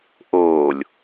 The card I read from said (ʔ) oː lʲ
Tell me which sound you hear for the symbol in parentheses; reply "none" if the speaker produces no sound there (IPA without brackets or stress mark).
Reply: ʔ